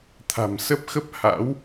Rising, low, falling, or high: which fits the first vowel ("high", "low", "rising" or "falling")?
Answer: low